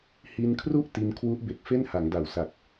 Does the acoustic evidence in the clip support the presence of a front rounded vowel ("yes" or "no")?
no